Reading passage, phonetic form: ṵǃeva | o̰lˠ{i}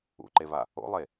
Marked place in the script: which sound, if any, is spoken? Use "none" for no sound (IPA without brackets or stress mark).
e